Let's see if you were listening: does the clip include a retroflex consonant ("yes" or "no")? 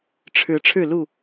yes